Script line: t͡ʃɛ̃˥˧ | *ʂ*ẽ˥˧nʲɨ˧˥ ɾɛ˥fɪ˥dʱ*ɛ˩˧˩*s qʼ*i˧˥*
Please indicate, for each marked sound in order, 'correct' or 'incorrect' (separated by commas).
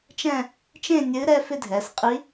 incorrect, correct, correct